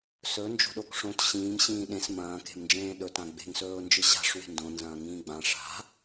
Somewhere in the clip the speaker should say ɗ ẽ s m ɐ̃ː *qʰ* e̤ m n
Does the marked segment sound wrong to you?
yes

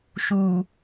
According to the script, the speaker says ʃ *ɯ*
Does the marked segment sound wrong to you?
yes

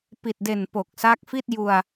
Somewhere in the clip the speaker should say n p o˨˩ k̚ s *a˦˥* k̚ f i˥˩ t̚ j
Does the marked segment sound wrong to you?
no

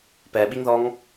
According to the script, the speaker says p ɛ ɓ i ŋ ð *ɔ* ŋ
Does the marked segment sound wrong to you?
no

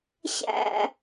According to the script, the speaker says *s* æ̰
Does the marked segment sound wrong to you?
yes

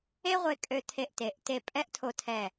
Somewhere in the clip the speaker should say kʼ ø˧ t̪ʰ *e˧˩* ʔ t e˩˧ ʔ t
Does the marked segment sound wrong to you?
yes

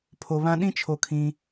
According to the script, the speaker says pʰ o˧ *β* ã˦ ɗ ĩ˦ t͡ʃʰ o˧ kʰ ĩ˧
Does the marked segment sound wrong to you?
no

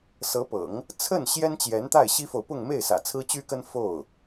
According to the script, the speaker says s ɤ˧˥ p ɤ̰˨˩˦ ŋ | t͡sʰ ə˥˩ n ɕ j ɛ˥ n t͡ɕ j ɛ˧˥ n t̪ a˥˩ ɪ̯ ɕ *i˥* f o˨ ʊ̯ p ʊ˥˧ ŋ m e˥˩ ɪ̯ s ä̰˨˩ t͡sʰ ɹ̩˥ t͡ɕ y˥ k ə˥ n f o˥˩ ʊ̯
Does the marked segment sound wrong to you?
no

